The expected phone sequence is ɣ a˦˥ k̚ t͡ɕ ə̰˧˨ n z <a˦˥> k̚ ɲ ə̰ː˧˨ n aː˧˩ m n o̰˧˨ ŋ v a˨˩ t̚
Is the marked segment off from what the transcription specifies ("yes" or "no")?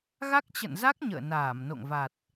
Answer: no